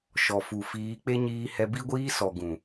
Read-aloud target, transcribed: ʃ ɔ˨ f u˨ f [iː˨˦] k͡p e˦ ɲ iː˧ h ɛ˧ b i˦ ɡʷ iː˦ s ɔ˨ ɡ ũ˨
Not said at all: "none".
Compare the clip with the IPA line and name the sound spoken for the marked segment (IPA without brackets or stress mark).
iː˨˦